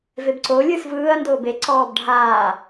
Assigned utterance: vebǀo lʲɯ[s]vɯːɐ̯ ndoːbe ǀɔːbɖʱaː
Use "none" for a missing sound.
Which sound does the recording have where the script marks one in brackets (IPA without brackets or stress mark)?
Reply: s